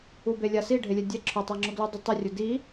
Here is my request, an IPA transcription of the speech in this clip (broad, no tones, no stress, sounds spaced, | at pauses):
u b e lʲ a s i ɖʱ e lʲ ɛ dʲ ɛ ǁʰ ʊ tˤ a ŋ͡ǁ ʊ ɡ l u dˤ ʊ tˤ ɘ rʲ ʊ d i